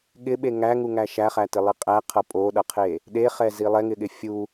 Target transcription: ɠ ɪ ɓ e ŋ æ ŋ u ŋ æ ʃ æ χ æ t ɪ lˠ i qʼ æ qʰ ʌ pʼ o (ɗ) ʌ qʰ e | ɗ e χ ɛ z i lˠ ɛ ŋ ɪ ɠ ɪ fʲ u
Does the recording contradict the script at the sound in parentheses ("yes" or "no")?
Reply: no